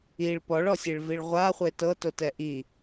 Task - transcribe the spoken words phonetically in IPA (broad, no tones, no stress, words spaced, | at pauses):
iɭ pɔɭɔsʲeɭviɭ ʁʷaχʷe tɤtotɛ ʔi